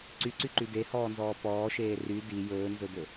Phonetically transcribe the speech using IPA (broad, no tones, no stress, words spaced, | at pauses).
ǀyǀyǃy dehɔːnzɔː pɔːʃeː ry di jɵːnzɵdɵ